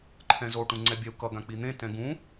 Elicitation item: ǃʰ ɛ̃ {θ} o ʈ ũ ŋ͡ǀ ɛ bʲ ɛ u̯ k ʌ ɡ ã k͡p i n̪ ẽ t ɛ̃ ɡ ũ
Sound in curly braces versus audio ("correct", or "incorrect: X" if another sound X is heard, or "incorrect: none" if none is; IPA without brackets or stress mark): incorrect: z